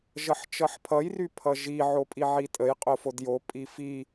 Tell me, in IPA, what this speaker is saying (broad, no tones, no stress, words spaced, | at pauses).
ʒʌħt͡ʃʌħpʰʌj rypʰʌʒi ʕopʼiʕitʼəj qʼofodjo pʼifi